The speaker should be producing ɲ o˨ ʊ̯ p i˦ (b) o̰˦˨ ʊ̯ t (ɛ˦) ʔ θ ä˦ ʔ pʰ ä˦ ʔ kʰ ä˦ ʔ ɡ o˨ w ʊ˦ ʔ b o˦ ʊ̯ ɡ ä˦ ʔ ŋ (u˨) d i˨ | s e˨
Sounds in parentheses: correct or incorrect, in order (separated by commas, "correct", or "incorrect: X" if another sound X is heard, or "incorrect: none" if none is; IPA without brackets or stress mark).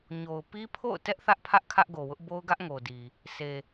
incorrect: pʰ, correct, incorrect: o˨